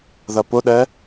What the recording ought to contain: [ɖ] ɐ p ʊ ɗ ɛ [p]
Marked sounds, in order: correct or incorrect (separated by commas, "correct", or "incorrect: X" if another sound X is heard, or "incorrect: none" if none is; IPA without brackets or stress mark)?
incorrect: ð, incorrect: none